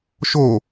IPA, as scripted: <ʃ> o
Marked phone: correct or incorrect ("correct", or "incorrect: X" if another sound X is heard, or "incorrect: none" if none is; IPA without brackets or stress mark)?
correct